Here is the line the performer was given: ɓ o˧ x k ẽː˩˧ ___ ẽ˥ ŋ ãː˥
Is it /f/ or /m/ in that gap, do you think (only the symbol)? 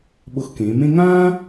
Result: m